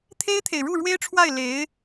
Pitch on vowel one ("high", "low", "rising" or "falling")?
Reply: high